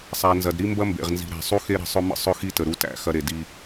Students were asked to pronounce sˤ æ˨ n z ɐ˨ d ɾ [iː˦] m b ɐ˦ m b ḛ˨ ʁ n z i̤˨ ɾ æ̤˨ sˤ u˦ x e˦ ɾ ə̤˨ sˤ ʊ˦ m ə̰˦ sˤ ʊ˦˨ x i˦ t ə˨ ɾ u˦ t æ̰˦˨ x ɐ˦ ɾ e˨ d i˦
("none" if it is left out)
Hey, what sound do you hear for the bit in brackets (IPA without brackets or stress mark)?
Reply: i˦